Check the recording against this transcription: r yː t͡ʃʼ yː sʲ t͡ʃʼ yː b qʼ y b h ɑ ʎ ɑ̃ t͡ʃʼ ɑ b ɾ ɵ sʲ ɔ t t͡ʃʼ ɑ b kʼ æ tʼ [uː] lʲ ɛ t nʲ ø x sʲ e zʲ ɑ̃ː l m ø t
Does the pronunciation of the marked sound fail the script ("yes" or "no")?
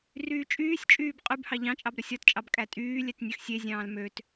yes